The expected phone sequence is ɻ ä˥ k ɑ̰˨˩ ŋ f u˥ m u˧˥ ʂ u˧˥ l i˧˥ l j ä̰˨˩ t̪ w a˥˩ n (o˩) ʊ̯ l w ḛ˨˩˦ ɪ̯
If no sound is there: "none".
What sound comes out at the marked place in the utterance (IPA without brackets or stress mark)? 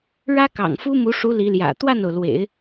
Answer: o˩